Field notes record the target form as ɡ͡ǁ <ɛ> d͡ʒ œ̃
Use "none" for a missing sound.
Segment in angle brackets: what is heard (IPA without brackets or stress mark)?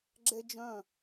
ɛ